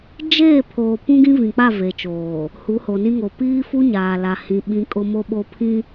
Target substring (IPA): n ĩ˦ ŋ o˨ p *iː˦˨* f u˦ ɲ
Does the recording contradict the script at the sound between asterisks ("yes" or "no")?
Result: yes